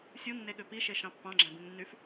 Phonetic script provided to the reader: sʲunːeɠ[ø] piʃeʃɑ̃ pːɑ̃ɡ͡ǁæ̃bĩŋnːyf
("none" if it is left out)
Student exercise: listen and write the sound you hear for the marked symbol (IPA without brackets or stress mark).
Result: ø